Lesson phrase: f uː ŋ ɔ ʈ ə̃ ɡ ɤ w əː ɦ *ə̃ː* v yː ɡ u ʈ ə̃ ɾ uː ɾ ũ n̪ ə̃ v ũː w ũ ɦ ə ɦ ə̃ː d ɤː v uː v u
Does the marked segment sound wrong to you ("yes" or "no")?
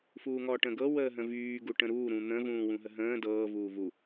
yes